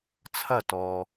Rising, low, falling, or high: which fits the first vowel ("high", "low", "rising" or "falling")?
falling